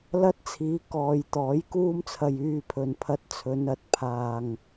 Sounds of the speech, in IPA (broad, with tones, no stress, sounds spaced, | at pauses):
l ɐ˥ t̚ t͡sʰ iː˨˧ k ɔː˨ j t̪ ɔː˨˥ j k uː˥ m t͡sʰ ɐ˧ j yː˧ pʰ ɵ˨ n pʰ ɐ˧ t̚ t͡sʰ ɵ˨˧ n ɐ˨˥ t̚ pʰ aː˨ ŋ